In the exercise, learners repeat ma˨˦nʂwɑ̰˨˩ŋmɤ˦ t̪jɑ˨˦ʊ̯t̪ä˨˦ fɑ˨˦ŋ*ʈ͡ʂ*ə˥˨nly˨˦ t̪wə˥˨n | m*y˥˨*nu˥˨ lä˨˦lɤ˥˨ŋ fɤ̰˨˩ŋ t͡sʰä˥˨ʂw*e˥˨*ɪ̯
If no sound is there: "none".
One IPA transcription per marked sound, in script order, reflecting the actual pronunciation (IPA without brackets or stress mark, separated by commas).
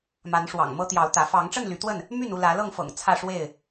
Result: ʈ͡ʂ, y˥˨, e˥˨